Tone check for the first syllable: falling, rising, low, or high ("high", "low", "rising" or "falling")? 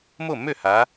falling